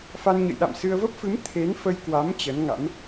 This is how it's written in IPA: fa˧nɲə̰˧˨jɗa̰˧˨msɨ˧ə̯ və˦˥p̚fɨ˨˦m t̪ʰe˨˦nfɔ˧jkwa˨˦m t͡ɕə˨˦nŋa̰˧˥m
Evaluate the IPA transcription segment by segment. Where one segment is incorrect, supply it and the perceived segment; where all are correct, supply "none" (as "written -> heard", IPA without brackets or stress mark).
ɔ˧ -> ə˧